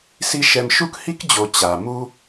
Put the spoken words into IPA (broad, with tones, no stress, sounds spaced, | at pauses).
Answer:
s i˥ ʃ ɛ˦ m ʃ u˥ k h i˥ k d͡ʑ o˨ t͡ɕ a˩ m u˦